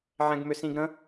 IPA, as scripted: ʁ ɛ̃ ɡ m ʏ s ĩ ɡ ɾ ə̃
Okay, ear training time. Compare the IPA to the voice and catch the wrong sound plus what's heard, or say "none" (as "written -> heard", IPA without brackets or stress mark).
ʁ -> ʕ